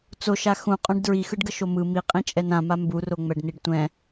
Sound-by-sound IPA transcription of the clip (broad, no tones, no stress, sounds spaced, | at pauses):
t͡s o ʃ a x ũ qʼ õ ɖ d ɹ i x ɯ ɖ ɡ ʌ ʃ o m ɯ m i qʼ ĩ t͡ʃʼ ɛ n ã m a m b u r o ŋ͡m ɛ ɖ n i ɖ tʷ ɛ̃